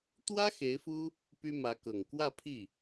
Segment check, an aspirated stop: present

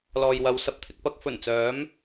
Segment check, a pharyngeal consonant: absent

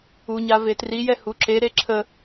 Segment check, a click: present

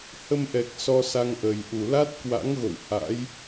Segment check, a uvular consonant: absent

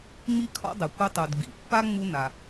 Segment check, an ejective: absent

